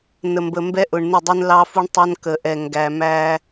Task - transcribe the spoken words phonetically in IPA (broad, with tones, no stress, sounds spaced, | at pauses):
n ə˨ m b ə˨ m b ɛ˦ ʔ ʊ˨ ɳ n ɪ˦˨ dˤ ə˞˦ n l ɑː˦ f u˦ ɳ tˤ ʌ˦ n k ə˨ ʔ ɛ˨ ŋ ɡ æ˨ m æ˦